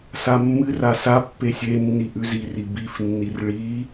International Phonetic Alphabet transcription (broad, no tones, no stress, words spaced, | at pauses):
samːɨra sapːe sʲe nːiʔʉziri bifnːir ɭi